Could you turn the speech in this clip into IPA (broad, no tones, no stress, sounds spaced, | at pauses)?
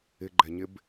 ɪ ɡ͡ǃ ɛ ɲ ɪ b